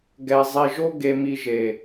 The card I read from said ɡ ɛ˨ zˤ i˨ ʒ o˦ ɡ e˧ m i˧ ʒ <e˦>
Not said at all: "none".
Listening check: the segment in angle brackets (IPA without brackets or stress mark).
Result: e˨